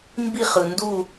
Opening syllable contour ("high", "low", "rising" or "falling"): falling